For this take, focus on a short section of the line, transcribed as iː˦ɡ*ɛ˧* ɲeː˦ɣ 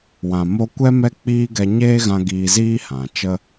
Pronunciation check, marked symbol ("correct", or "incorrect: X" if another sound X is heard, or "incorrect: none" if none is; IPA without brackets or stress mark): correct